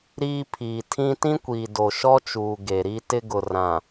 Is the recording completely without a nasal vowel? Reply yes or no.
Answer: no